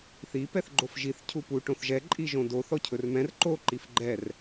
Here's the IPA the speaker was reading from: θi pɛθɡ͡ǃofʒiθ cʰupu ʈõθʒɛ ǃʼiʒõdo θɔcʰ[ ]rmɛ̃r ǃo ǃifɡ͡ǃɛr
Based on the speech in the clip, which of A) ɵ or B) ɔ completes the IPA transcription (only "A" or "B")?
A